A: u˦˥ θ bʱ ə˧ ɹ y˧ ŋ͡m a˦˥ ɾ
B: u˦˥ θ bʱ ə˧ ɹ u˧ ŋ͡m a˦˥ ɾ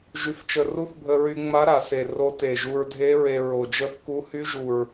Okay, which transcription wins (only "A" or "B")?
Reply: A